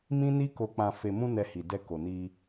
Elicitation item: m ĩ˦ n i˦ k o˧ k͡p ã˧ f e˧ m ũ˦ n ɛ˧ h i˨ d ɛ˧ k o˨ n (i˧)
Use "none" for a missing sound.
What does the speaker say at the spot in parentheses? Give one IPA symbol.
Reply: i˧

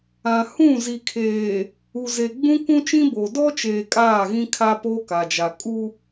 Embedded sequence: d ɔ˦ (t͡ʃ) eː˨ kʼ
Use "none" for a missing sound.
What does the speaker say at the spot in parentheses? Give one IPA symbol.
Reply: t͡ʃ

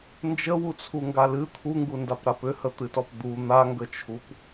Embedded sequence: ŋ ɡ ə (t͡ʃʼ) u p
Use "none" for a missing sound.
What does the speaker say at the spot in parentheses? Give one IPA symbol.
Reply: t͡ʃʰ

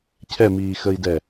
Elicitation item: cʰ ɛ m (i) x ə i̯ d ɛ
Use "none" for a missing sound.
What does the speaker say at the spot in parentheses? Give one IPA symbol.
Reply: iː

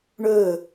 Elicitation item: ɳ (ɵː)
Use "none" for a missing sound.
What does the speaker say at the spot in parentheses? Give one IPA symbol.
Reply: ɵː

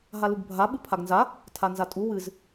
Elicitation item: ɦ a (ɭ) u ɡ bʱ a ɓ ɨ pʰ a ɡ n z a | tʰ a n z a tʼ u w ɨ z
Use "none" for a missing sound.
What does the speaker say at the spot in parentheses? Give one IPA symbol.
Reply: l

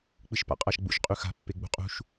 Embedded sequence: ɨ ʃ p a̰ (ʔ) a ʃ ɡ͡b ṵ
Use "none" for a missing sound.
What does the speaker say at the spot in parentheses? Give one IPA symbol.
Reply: qʼ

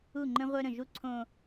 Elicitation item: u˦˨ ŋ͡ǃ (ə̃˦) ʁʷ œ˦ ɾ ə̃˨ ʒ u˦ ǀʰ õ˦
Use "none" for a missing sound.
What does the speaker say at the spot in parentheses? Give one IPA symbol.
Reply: ə̃˦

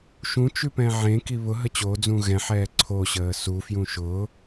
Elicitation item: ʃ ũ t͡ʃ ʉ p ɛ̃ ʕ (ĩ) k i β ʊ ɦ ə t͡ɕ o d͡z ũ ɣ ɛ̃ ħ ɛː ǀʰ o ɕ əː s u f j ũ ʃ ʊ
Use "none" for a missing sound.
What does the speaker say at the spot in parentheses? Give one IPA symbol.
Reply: ẽ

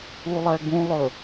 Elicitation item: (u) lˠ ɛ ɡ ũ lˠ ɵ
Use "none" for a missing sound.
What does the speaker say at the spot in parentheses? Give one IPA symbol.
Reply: u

